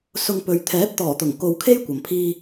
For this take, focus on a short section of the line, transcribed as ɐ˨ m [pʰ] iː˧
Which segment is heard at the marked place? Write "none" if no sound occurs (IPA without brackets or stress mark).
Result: pʰ